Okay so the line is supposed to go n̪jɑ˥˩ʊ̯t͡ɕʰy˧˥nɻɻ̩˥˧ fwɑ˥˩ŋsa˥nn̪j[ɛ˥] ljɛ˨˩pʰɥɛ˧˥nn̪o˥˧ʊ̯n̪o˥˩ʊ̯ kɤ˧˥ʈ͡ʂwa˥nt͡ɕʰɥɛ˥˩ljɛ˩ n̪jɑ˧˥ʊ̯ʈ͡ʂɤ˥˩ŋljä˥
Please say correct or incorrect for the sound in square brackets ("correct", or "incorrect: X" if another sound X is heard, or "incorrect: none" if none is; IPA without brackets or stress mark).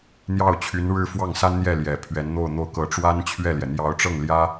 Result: incorrect: ɛ˥˩